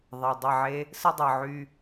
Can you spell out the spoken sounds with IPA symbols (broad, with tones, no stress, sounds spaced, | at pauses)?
ðˤ ɛ˨ dˤ ə˦˨ ʕ e˦ | s ə˦ dˤ ɤ˨ ʕ y˦